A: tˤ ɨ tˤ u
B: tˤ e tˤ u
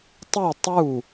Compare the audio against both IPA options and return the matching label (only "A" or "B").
A